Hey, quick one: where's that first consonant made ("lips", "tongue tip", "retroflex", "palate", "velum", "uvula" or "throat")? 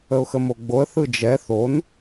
velum